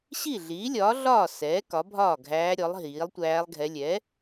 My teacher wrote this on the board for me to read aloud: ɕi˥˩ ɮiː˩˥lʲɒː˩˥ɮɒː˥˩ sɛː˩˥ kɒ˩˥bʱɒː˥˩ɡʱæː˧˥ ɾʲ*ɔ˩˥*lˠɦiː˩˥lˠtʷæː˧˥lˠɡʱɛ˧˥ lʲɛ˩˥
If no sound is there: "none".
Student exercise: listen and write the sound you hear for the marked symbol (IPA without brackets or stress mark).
ɔ˩˥